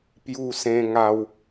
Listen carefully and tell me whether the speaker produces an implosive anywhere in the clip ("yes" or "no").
no